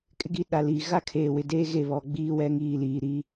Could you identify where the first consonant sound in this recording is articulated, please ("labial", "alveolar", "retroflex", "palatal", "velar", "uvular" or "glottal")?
velar